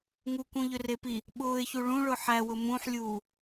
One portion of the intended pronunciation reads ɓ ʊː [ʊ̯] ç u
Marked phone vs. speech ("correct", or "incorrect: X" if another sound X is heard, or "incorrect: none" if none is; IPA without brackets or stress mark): incorrect: ɪ̯